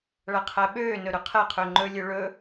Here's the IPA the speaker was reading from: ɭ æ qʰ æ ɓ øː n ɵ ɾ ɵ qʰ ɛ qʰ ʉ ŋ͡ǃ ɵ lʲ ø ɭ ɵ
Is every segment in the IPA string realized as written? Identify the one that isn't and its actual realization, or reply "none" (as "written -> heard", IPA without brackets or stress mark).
ʉ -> ø